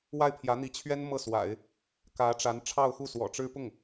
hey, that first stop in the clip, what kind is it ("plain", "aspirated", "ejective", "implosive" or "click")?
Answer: aspirated